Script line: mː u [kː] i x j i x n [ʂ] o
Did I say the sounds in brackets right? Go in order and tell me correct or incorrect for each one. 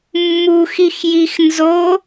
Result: incorrect: x, incorrect: z

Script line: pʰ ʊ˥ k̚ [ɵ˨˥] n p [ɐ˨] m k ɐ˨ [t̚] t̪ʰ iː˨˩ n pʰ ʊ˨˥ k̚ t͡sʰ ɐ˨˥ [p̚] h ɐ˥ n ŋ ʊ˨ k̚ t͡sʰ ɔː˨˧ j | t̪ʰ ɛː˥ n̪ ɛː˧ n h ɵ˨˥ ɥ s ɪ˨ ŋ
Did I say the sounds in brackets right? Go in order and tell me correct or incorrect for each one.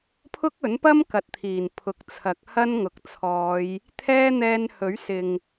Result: correct, incorrect: ɐ˥, correct, incorrect: k̚

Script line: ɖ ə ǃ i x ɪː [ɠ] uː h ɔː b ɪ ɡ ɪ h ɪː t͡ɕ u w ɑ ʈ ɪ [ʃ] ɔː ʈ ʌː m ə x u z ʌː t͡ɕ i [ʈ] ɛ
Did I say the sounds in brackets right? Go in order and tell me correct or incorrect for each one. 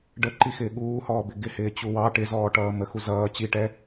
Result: correct, incorrect: z, correct

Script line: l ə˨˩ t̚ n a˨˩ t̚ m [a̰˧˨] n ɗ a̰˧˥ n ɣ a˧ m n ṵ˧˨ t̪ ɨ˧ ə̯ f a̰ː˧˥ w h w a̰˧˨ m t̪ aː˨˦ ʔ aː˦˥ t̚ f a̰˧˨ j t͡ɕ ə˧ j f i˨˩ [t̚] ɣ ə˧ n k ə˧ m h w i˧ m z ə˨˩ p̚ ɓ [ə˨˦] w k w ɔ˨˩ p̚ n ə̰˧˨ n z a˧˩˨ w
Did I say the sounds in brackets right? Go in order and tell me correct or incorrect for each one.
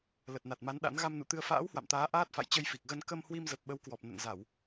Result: incorrect: a˨˦, incorrect: k̚, correct

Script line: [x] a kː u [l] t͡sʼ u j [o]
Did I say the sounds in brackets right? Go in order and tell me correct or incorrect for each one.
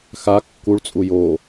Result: correct, incorrect: ɭ, correct

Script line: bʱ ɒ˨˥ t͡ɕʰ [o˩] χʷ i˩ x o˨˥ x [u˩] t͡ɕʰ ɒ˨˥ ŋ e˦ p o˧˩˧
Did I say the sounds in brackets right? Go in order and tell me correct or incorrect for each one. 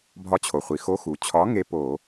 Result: correct, correct

